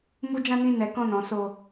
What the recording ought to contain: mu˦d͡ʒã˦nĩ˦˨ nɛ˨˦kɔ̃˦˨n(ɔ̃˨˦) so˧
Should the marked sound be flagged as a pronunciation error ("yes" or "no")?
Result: no